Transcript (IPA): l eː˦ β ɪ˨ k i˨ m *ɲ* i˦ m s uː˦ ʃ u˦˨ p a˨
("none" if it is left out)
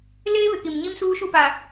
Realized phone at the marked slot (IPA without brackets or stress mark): ɲ